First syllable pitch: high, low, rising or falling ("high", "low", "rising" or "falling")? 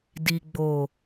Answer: low